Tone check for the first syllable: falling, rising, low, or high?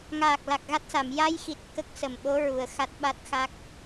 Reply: low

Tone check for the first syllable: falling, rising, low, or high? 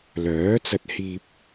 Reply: rising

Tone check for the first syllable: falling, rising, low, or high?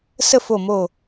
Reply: falling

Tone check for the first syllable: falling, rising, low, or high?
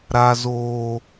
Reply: high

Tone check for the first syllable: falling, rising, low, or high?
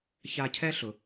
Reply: high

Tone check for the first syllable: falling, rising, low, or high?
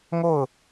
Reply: falling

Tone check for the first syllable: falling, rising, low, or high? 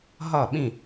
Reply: falling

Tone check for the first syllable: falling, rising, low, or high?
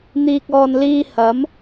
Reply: low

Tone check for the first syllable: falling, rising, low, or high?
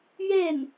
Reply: falling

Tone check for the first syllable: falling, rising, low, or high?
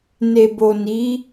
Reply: low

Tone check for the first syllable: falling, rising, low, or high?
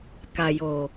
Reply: low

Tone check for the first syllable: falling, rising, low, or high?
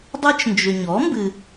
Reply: high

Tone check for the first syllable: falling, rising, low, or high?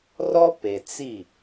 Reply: high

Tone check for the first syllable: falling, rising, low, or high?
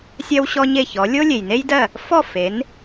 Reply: high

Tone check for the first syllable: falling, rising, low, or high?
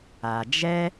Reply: low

